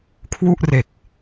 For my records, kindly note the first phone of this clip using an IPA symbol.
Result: kʰ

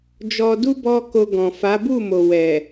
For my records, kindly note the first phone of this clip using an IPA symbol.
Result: d͡ʒ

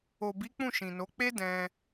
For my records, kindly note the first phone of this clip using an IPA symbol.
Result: o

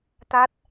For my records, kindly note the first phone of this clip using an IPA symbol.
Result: t̪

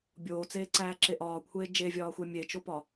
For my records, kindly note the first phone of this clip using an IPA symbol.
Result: bʲ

